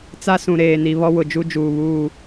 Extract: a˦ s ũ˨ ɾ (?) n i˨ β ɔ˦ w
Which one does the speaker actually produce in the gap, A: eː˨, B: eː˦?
A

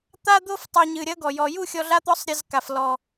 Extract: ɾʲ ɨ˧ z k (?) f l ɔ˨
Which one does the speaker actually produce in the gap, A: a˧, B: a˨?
B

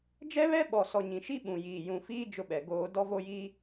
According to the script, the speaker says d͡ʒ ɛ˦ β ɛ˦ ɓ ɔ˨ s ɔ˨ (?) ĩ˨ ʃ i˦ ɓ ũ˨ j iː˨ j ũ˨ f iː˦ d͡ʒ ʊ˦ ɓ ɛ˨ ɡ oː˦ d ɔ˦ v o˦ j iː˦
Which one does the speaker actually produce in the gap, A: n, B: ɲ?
B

